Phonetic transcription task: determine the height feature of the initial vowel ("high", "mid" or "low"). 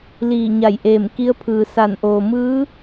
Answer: high